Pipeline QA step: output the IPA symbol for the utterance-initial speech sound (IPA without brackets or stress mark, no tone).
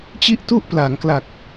t͡ɕ